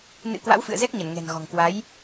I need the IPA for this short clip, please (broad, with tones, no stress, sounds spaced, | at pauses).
n ɨ̰˧˥ k w a̰˧˥ w f ɨ̰˧˨ ə̯ z ɛ˦˥ k̚ ɲ ə˧˩ n ŋ ɛ̤˨˩ n ɣ ɔ̤˨˩ ŋ k w a˨˦ j